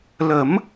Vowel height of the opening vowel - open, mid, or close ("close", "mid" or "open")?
mid